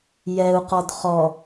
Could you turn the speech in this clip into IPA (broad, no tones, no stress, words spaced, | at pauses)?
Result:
jɛu̯qɔd χɔ